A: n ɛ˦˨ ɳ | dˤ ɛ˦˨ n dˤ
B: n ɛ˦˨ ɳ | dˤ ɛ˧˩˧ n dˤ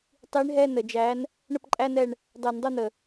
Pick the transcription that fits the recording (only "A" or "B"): B